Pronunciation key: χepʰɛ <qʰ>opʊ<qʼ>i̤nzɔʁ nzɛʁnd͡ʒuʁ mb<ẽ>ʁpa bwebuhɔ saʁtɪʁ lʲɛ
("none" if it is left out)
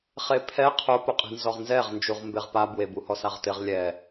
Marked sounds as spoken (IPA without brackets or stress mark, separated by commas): qʰ, qʼ, e